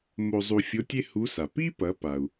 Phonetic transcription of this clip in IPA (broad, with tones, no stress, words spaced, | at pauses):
mo˧zˤu˧fʲo˧˥ tʲe˥hu˧˥sa˩ pi˥pɐ˩˧ pa˩u̯